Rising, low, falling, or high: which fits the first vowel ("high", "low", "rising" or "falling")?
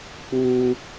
high